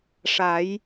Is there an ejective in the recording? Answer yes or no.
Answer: no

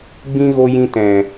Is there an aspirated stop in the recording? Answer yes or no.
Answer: no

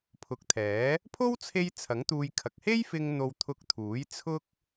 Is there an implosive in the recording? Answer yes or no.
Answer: no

